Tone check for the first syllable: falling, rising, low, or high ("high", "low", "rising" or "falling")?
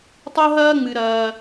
high